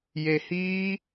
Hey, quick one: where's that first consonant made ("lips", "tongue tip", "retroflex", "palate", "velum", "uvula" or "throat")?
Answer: palate